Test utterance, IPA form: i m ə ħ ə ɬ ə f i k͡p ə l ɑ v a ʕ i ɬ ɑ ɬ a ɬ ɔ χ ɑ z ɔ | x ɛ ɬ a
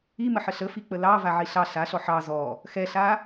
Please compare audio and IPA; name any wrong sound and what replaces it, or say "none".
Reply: χ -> ħ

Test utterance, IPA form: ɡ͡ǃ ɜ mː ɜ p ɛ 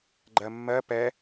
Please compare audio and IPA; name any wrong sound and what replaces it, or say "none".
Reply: none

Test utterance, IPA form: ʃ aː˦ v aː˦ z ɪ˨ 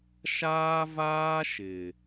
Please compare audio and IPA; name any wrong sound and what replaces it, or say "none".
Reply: z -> ʃ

